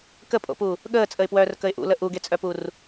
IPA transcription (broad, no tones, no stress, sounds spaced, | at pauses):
k ə pʼ o̰ p u | ɠ əː t͡sʼ ə ɪ̯ p w œː r k ə ɪ̯ ʔ ṵ l ə ʔ u ɡ e t͡sʼ œ p u r